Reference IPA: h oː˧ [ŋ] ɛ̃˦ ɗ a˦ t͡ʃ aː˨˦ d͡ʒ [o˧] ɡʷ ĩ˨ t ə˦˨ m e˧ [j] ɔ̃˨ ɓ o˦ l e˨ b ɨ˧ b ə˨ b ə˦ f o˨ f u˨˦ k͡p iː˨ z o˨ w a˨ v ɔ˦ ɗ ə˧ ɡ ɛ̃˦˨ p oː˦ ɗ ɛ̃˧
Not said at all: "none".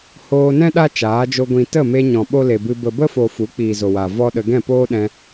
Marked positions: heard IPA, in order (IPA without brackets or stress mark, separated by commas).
n, o˧, ɲ